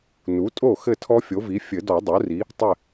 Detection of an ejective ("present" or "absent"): present